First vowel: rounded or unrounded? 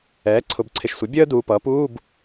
unrounded